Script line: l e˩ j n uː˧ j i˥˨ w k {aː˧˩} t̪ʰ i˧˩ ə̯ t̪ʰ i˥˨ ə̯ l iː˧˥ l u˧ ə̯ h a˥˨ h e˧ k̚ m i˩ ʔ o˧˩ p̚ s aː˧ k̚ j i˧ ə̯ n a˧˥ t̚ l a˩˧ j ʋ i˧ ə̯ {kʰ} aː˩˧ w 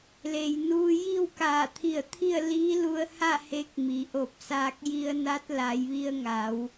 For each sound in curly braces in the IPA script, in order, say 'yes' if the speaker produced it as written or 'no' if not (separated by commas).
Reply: yes, no